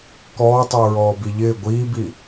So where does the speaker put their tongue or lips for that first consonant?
velum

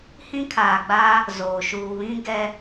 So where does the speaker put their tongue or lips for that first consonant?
throat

